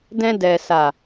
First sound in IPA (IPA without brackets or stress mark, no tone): d